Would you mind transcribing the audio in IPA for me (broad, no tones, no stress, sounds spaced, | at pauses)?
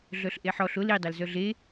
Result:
ɮ œ ɬ ʔ e ħ ɔ ɬ ʊ l i dˤ œ l z œ ɮ e